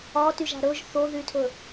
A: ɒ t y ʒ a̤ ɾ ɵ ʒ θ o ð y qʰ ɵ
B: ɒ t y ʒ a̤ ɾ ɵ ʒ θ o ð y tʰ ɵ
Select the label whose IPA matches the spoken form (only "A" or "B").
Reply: B